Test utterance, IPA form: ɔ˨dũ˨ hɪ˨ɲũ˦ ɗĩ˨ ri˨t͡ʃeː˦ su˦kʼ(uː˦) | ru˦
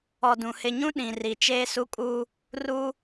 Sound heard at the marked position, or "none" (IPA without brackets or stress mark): uː˦